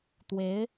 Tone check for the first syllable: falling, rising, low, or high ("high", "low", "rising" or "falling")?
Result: rising